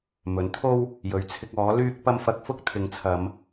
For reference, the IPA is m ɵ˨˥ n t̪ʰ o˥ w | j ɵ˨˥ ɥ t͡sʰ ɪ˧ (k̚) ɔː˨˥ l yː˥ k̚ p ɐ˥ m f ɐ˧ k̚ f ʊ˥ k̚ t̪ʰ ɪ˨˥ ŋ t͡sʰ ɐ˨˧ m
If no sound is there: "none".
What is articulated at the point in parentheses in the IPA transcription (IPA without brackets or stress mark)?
k̚